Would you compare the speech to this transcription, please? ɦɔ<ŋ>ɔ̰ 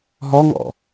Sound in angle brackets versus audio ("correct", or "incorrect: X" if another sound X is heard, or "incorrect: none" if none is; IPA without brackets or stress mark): correct